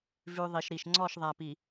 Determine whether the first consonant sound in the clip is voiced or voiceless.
voiced